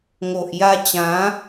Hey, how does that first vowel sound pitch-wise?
low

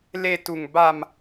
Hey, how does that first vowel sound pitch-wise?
high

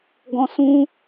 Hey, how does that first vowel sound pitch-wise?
high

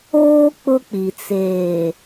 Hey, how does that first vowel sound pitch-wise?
high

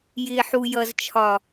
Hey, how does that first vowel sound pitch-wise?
low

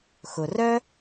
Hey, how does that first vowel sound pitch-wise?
low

